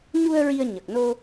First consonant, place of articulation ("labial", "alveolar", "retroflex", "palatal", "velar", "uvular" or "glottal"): palatal